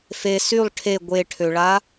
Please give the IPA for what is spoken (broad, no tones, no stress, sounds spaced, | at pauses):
f e s y lˠ ʈʰ e ɡʷ e ʈʰ ø ɭ a